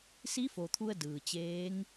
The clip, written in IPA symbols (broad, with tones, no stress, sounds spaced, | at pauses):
s i˧˥ f o˩ t̪ʰ u˧ ə̯ d ɯː˩ t͡ɕ eː˧˥ ŋ